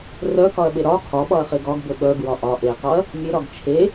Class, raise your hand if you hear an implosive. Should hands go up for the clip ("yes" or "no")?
yes